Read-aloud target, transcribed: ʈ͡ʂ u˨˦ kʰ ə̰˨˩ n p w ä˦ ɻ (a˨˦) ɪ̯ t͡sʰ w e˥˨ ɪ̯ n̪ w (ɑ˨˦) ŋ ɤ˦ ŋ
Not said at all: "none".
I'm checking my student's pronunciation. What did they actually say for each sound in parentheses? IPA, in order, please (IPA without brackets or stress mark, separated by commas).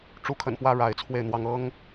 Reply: a˨˦, ɑ˦